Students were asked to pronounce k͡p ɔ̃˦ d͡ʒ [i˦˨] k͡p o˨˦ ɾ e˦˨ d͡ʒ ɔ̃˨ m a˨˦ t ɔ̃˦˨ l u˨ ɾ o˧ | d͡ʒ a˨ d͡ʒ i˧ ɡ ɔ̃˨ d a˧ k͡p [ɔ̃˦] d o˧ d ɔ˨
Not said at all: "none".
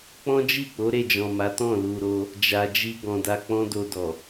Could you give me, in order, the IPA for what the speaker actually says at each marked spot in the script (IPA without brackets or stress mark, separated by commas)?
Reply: i˦˨, ɔ̃˦